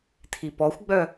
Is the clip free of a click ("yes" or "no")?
yes